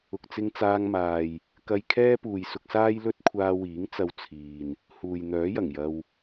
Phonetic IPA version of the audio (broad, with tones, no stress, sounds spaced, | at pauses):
ʊ˨ k̚ t͡s ɪ˧ ŋ t͡s aː˧ ŋ m aː˨ j | k ɐ˧ j kʰ ɛː˥ p uː˨ j s ʊ˧ k̚ s aː˥ j l ɵ˥ t̚ kʷʰ aː˧ w iː˨˥ ŋ t͡s ɐ˧ w t͡sʰ iː˨ n | h uː˨ j n̪ œː˨˥ j ɐ˨˩ ŋ j ɐ˧ w